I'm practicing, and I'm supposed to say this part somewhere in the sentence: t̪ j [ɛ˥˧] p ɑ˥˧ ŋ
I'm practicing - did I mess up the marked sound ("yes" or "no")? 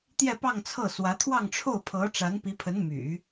no